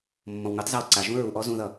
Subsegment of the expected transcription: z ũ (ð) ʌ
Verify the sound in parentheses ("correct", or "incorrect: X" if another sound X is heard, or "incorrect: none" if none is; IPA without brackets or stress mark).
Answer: correct